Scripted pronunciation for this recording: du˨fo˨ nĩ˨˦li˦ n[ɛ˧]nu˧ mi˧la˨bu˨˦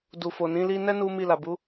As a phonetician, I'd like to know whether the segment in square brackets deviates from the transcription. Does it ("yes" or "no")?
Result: yes